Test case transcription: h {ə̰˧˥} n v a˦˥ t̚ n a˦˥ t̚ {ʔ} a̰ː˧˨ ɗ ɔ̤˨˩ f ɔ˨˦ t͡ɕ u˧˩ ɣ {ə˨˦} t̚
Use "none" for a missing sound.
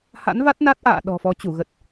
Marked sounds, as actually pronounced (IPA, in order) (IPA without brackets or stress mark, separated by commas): a̰˧˥, ʔ, ə˨˩